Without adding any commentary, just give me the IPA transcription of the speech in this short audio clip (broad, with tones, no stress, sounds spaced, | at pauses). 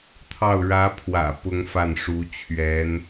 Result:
t̪ʰ ɑ˥˩ ʊ̯ ɻ ä˧˥ pʰ w ä̰˨˩ p ʊ˥ ŋ f a˥˩ n ʂ u˧˥ t͡ɕʰ ɥ ɛ˧˥ n